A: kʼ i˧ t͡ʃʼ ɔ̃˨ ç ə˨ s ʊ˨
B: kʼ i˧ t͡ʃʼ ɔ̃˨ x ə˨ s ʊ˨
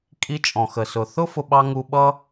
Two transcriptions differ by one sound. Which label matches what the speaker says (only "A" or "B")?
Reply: B